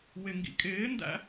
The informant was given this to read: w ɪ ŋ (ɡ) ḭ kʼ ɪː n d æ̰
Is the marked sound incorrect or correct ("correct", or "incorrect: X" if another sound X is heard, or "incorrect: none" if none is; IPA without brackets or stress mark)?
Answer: correct